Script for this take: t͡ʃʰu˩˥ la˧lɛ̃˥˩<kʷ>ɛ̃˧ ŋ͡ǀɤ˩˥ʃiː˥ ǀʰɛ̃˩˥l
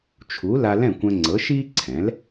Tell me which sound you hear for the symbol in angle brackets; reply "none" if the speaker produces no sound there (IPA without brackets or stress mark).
kʷ